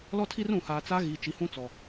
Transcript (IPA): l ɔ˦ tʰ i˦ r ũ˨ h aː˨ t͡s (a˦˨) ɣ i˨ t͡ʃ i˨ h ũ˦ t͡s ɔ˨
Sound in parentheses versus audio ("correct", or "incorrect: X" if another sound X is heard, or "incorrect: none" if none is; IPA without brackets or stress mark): incorrect: a˦